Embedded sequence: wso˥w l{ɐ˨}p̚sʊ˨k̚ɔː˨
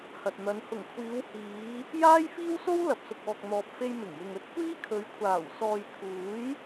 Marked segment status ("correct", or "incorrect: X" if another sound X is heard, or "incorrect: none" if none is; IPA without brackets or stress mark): correct